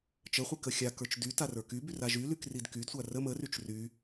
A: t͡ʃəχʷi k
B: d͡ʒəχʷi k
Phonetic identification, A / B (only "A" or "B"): A